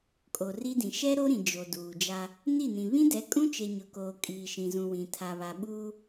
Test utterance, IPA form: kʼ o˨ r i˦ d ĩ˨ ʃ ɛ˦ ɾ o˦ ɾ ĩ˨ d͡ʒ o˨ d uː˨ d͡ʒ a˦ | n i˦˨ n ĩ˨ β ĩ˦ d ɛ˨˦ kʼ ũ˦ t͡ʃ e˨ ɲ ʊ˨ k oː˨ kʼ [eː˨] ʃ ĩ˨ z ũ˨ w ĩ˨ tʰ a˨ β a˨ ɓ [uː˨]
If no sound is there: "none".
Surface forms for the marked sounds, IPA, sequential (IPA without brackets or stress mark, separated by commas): iː˨, uː˦